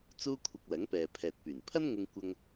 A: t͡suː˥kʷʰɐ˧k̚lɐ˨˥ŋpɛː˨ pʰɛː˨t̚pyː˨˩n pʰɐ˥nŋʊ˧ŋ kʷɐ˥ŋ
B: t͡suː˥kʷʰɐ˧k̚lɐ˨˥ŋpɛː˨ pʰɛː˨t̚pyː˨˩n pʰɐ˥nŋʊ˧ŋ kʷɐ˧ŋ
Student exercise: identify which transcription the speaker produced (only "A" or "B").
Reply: A